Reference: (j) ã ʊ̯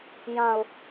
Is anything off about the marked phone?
no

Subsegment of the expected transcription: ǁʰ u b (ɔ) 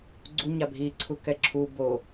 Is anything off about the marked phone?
yes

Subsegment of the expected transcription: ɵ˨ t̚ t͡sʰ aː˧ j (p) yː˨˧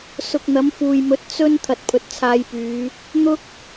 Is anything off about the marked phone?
no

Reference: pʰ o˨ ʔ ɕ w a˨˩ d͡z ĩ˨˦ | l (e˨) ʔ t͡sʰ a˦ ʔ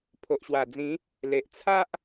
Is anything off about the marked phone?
no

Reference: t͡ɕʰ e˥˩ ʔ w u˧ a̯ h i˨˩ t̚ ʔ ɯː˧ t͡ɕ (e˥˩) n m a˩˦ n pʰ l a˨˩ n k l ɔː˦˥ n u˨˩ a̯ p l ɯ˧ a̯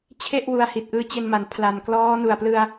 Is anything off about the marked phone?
yes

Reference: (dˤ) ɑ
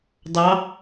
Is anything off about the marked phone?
no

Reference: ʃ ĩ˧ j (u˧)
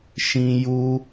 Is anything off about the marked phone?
no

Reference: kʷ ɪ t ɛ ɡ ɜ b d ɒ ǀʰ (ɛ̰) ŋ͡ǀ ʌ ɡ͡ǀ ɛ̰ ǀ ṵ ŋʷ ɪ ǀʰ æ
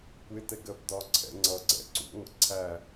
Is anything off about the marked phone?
no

